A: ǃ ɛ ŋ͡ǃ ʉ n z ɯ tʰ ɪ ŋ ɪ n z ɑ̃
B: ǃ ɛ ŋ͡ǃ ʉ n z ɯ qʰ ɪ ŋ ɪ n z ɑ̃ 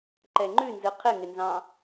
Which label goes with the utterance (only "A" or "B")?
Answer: B